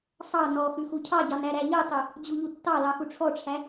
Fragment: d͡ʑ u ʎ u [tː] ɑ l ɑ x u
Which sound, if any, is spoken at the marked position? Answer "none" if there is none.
tː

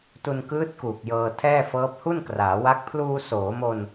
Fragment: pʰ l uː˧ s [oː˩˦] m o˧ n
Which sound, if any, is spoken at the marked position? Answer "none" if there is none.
oː˩˦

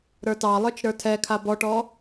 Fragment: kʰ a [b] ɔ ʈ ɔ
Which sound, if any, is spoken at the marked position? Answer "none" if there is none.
b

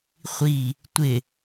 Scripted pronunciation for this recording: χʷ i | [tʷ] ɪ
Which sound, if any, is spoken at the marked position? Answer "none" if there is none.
tʷ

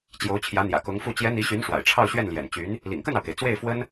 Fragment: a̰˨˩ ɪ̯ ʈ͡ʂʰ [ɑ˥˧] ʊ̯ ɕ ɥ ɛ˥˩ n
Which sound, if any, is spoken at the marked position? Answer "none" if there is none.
ɑ˥˧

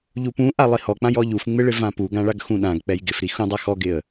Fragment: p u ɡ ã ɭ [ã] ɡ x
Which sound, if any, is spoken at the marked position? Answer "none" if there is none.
a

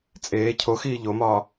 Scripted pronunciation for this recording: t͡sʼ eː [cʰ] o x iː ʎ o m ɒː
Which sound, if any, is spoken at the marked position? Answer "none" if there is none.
cʰ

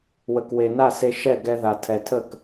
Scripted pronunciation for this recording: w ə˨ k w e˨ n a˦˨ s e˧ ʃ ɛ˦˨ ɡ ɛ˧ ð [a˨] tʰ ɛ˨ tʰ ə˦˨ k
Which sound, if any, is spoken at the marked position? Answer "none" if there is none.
a˨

